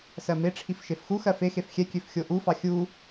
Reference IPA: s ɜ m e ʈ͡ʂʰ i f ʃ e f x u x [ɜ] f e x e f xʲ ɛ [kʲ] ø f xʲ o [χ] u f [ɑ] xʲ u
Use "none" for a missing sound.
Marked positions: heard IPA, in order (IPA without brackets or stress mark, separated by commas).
ɜ, kʲ, ʔ, ɑ